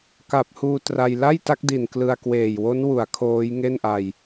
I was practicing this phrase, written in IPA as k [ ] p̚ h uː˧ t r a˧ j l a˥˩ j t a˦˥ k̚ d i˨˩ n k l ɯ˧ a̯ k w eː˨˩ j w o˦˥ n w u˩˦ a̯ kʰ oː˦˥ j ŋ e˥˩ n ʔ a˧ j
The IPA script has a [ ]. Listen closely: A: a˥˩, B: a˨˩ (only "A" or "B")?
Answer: B